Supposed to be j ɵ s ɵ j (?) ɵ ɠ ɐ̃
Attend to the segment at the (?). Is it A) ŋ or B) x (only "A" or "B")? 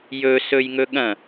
A